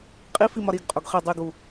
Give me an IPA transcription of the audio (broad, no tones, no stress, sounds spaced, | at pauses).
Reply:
qʼ i f i m ɒ ɾ i ɡ qʼ o ɡ χ e dˤ i ɡ u